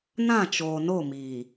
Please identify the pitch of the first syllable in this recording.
falling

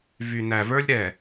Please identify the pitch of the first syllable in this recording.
low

